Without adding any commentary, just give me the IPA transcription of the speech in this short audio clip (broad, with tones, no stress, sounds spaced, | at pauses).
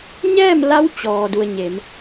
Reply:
ɲ ɛː˥˨ m l a˧˥ w t͡ɕ ɔː˩ d u˩ ə̯ ɲ e˩˧ m